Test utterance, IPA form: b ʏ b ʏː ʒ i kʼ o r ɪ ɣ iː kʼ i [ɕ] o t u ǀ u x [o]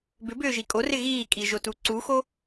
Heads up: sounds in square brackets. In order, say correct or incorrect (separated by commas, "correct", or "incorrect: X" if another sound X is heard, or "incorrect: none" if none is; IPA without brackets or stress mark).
incorrect: ʒ, correct